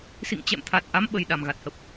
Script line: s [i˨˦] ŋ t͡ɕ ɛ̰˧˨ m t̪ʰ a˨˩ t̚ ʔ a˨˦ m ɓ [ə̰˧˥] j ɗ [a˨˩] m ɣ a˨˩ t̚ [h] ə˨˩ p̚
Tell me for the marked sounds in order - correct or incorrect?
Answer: incorrect: ḭ˧˨, incorrect: ə˨˩, correct, correct

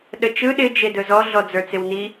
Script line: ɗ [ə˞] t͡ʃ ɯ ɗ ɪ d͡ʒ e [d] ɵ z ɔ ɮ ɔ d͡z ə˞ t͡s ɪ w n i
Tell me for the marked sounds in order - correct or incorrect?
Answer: incorrect: ə, correct

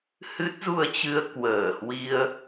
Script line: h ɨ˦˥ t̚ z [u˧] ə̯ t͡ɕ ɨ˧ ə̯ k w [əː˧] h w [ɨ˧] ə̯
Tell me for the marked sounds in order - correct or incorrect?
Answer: correct, incorrect: əː˧˩, incorrect: i˧

